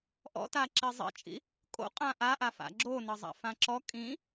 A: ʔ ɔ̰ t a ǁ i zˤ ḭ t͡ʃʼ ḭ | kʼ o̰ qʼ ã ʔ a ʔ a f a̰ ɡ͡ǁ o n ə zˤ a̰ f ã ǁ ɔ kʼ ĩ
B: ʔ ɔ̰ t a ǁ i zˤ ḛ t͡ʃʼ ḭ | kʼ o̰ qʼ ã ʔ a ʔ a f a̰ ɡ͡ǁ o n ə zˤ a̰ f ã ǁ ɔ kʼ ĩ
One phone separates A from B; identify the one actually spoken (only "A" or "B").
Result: A